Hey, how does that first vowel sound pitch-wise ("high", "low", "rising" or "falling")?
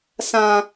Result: high